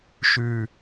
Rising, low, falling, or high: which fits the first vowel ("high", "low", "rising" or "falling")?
low